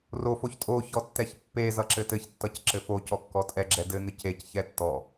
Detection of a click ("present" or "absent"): present